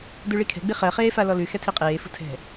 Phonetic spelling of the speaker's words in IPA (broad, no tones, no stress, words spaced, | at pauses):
dʉɭikʰɛ̤ ɡ͡biχɜ χeːfalɔlʉ xɛtʰiqʼeː fṳtʰɛ̤